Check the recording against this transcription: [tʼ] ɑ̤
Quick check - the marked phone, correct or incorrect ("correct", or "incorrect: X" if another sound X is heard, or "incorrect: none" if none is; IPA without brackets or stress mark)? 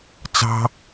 incorrect: t͡s